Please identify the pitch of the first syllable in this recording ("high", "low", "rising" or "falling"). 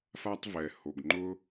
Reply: high